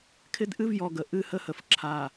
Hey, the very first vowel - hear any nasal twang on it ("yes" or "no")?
no